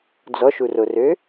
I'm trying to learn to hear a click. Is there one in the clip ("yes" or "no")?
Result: no